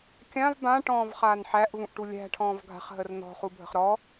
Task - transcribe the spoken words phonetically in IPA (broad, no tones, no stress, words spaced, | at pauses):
kʲãv bãʈɔ̃ːvχaːn ħæʔvũʔʈu lʲæ̤ʈʰɔ̃ːv ɡʱa̤χɦər nɔ̤χubʱə̤χ ɾɔ